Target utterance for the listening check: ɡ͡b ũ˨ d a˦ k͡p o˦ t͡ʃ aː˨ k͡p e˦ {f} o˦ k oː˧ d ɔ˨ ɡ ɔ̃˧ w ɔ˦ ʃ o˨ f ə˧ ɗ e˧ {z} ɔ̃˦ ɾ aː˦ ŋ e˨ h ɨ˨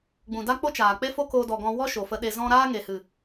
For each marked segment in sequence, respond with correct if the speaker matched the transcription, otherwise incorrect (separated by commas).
correct, correct